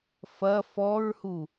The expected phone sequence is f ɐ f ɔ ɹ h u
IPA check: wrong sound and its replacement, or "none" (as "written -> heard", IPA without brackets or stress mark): none